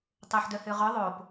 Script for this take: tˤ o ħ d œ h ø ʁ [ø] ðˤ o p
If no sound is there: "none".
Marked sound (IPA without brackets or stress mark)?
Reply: œ